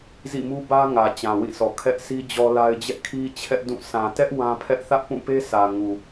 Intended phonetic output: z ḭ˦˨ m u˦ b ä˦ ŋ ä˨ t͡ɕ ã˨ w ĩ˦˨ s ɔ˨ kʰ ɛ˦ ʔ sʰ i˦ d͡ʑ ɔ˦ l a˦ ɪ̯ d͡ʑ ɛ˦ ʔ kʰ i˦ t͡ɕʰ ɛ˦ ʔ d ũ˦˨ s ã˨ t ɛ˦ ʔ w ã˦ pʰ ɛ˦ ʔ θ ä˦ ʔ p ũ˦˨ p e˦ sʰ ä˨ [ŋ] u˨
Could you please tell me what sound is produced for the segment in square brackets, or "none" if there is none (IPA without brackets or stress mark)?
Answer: ŋ